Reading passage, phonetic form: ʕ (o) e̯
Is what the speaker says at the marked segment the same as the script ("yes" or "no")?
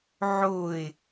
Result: yes